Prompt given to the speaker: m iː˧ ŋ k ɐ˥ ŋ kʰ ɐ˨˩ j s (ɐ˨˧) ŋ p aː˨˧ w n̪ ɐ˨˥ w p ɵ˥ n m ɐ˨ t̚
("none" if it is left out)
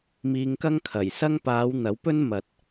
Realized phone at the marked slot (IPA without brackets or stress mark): ɐ˥